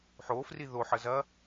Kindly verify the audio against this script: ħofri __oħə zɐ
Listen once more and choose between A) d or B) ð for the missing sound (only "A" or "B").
B